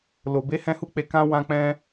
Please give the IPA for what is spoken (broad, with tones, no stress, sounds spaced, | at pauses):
l o˧ b e˦ h ɛ̃˦ h u˦ k͡p e˧ k ã˦ w ã˦ k͡p ɛ̃˦